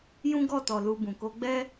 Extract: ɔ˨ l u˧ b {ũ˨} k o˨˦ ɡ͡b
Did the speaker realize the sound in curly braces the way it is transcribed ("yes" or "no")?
yes